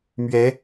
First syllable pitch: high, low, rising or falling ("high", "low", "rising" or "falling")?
rising